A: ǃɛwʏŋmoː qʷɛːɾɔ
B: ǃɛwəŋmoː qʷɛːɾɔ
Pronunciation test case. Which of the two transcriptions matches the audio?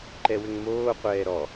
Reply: A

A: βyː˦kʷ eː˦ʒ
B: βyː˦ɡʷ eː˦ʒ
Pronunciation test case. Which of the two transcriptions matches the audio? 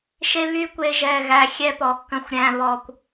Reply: A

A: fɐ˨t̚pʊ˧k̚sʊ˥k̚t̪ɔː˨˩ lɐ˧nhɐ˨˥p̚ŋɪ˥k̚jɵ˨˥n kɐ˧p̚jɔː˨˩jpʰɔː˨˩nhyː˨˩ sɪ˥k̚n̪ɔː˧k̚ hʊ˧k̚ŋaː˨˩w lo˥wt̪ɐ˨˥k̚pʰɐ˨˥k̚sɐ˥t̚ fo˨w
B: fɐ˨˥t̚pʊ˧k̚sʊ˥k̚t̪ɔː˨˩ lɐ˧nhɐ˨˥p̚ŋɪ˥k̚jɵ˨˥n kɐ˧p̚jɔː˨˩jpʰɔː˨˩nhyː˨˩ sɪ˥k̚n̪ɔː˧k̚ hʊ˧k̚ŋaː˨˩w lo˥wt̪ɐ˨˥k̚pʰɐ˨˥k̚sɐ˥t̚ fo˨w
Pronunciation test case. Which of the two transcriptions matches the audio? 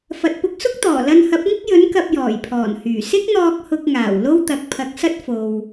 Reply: A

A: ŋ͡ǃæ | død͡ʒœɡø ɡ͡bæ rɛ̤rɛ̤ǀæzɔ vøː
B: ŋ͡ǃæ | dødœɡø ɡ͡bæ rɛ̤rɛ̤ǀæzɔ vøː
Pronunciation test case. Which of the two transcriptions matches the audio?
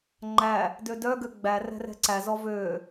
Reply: B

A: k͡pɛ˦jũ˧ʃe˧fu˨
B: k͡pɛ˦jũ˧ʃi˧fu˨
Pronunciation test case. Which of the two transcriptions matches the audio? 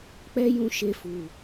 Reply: A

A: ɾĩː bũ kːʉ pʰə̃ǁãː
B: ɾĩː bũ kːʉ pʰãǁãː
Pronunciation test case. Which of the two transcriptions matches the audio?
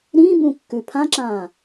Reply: B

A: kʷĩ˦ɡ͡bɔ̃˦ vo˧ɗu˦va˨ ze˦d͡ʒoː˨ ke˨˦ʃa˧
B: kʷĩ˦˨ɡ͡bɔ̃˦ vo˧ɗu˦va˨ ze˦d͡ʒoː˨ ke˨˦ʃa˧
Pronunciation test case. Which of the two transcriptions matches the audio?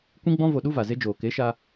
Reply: A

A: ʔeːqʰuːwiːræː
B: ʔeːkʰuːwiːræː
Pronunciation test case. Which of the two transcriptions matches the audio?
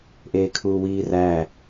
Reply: B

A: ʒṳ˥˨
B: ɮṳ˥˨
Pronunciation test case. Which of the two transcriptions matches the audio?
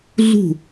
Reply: B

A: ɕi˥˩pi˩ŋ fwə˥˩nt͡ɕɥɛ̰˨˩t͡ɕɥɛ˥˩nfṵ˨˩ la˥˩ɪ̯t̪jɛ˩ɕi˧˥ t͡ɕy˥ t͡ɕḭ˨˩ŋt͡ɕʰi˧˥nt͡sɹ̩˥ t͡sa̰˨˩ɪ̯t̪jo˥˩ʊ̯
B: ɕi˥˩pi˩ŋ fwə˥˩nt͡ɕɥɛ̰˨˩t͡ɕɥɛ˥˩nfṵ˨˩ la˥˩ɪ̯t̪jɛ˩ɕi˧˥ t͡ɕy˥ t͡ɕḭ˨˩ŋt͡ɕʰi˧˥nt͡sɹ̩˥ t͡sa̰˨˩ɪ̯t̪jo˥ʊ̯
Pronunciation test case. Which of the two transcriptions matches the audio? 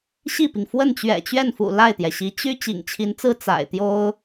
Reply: B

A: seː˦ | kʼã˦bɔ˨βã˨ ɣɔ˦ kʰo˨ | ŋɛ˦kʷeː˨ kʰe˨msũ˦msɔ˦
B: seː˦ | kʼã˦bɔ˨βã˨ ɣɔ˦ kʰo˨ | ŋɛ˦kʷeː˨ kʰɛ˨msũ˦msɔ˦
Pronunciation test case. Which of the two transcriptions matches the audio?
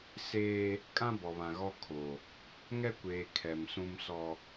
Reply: B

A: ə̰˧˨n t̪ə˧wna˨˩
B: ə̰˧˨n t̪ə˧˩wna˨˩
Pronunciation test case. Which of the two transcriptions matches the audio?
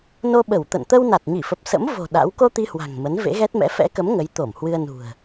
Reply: A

